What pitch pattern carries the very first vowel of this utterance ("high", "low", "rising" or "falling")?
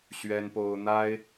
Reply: high